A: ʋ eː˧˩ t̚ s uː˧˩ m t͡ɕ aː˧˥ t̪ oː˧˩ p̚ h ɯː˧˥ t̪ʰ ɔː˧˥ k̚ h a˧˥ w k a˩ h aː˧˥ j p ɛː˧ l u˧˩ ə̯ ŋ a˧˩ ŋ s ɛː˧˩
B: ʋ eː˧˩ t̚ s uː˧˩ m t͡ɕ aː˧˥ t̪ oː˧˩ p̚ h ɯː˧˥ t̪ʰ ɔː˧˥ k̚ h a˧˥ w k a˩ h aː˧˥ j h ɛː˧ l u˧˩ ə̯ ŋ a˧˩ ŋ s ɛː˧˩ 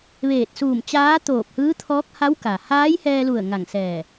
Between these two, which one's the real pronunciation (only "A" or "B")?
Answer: B